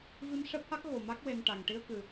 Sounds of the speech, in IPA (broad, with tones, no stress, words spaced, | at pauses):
vi˧mʂɛ˦˥p̚ha˦˥k̚ ɣo˨˩ma˦˥k̚ we˧nʈa˨˩ŋ ʈi˧ə̯kɨ˨˩